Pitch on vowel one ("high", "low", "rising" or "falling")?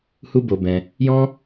high